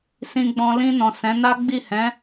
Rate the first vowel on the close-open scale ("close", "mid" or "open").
close